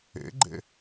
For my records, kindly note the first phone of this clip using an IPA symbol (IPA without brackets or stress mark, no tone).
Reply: ḛ